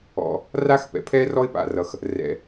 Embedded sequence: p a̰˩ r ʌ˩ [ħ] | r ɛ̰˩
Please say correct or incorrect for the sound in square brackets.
incorrect